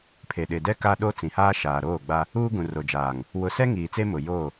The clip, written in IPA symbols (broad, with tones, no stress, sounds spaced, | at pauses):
pʰ e˨ ɗ ɪ˨ d ɛ˦ k a˦ ɗ o˦ t͡s ĩ˨ h aː˦ ʃ aː˨ ɾ oː˦˨ ɡ͡b a˦ | uː˦ ɡ ũ˨ r o˨ d͡ʒ aː˨ ŋ | w ʊ˨ s ɛ˦ ŋ iː˨ t͡s e˦ m ʊ˨ j o˦˨